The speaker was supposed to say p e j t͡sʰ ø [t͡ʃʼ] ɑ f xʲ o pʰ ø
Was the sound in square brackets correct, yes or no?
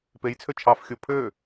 no